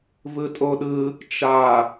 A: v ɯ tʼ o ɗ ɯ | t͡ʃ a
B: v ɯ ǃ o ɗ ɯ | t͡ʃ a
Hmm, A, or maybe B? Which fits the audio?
A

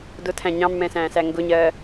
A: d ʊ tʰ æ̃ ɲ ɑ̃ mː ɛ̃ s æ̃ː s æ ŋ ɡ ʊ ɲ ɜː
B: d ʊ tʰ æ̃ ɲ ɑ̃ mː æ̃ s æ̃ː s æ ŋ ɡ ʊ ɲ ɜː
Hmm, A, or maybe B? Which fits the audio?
A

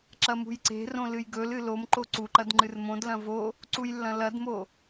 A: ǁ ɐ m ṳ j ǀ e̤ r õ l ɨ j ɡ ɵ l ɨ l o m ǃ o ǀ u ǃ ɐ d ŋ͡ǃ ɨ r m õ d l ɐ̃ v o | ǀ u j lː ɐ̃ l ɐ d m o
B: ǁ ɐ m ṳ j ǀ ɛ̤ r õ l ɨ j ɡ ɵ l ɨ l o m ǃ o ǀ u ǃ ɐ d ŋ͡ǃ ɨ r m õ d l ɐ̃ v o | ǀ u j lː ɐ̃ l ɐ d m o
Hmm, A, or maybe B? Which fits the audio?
A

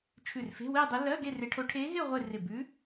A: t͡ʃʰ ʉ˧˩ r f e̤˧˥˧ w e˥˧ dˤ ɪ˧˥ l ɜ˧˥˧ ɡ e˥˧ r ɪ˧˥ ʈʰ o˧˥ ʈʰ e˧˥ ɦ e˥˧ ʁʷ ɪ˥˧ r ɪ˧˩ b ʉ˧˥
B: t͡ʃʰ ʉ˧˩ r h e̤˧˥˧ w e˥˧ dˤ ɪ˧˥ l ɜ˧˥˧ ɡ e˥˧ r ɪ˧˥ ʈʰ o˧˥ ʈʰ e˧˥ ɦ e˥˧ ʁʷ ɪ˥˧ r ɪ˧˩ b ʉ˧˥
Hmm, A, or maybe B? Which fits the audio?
A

